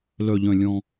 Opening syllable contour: low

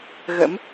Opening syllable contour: rising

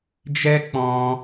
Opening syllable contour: high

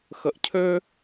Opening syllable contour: low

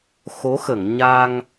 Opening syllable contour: rising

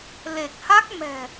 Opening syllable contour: low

